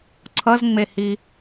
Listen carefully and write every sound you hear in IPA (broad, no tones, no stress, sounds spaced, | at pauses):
ǀʰ ʌ z ŋ͡m e h i